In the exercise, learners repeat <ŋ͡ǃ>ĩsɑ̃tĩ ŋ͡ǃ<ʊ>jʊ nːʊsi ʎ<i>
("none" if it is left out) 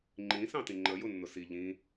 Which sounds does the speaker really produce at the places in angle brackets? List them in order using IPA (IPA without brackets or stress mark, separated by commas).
ŋ͡ǃ, ə, ĩ